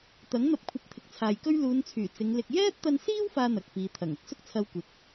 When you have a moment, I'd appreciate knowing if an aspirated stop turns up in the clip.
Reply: yes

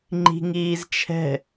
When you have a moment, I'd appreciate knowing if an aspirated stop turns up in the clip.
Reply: yes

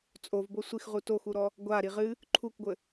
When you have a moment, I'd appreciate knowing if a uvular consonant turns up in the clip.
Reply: yes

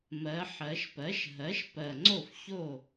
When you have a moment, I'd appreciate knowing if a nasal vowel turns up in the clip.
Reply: no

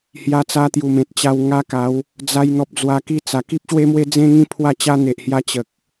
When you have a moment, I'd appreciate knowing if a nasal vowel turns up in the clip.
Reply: yes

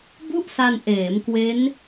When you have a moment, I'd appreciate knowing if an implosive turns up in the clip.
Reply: no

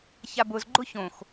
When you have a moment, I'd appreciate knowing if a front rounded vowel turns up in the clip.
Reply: no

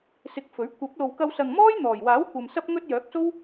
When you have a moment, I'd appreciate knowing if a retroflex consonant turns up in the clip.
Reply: no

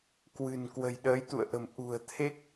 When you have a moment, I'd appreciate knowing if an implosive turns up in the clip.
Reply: yes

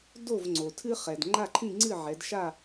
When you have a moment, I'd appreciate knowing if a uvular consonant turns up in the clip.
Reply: yes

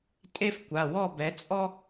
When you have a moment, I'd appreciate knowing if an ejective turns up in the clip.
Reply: yes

